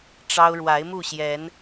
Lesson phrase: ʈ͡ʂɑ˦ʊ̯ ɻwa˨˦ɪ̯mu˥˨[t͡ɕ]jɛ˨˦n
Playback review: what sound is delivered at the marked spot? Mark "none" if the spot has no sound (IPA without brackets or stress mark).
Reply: ɕ